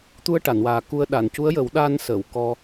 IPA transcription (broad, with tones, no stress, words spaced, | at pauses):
t̪u˧ə̯ʈa˨˩˨nwaː˨˩ ku˧ə̯ ɗa˨˩˨ncu˧˥ə̯jə˨˩˦w ɗa˧nsə˨˩˨w kɔ˧